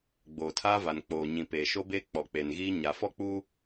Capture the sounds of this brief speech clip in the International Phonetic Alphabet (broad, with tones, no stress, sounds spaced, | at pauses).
ɡ͡b oː˨ tʰ aː˦ v a˨ n k͡p oː˨ ɲ ĩ˨ p eː˨ ʃ o˦ b eː˦ k͡p ɔ˨ k͡p e˨ n ɣ iː˦ ɲ a˨ f ɔ˦ k͡p u˦